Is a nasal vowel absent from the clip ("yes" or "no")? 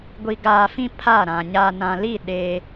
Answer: no